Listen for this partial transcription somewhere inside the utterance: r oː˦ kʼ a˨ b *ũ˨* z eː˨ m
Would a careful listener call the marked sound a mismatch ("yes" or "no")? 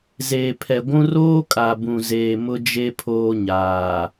no